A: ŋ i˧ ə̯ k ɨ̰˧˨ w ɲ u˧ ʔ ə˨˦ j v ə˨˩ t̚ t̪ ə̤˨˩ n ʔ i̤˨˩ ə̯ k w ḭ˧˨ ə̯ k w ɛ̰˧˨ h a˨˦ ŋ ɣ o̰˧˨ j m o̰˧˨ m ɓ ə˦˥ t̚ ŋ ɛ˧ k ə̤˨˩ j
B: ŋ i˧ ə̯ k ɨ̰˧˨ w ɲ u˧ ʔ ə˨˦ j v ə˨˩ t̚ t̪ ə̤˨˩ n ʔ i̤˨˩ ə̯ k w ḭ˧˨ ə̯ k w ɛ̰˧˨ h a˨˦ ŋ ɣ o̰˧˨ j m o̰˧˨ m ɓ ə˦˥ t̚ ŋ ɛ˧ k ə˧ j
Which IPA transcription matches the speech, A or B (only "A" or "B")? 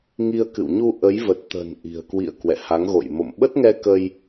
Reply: B